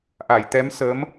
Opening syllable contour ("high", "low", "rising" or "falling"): low